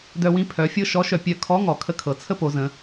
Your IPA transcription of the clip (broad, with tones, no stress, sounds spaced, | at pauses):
d œ˧ w ĩ˧˥ pʰ œ˩˧ fʲ ɤ˥ ʃ ɔ˧˥ ʃ œ˧ pʲ œ˧ kʰ ɔ˧˥ ŋ ɔ˩ kʰ ə˧ kʰ ɤ˩ t͡sʰ ə˥ p o˩˧ z ə̃˩˧